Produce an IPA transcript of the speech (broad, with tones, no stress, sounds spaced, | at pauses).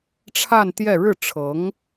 ʈ͡ʂʰ a˥˧ n t̪ j ɛ˥˧ ɻ ɻ̩˥˩ ʈ͡ʂʰ ɤ˧˥ ŋ